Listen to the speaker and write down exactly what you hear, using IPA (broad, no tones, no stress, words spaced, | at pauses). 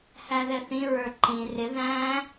hæðɛθĩɹə˞ ǃĩ rɪ ðæ̃